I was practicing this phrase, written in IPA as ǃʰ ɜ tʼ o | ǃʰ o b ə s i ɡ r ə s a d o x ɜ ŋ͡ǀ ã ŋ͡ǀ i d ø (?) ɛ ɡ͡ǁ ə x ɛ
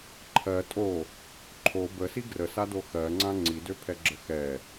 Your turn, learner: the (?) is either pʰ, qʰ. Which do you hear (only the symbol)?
pʰ